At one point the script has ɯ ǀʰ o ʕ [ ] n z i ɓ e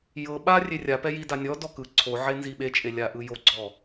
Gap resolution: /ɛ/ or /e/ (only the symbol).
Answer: e